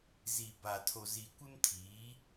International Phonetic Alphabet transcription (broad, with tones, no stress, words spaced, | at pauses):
zi˨ba˨ tʰo˨zi˨kʷɪ˦mtʰiː˨˦